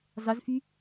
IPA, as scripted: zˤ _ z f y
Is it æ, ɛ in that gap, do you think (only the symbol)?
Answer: ɛ